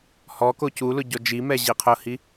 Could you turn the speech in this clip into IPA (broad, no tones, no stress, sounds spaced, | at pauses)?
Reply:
h ɔ k o c u l ʊ ɟ ɔ d͡ʒ i m ɛ ʑ i qʰ ʊ h i